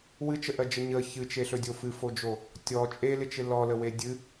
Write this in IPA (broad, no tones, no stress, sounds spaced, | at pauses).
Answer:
w ɨ t͡ʃ ə ʔ ɜ d͡ʒ ə ɲ ə ç ɨ t͡ʃ e ɬ ɵ dʲ o f ɨ f o d͡ʒ o | tʲ ɔ t͡ʃʼ e l ɪ t͡ʃ ɪ l ɔ l ə w e dʲ ɨ